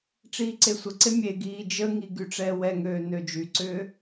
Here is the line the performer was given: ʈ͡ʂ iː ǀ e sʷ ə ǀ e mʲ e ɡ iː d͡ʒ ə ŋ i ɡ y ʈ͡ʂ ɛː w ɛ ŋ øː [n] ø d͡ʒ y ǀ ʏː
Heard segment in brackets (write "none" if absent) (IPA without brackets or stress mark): n